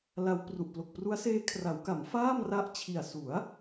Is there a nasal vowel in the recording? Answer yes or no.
no